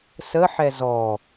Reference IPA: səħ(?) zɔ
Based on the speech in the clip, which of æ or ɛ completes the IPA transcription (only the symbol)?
ɛ